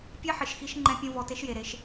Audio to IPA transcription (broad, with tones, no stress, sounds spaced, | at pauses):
pʲ ɛ˦ ħ ɪ˨ ʃ x i˧ ʃ ŋ͡ǃ ɛ̃˧ pʲ õ˧ v ɔ˧ t e˦ ʃ j e˨ ɾ e˧ ʃ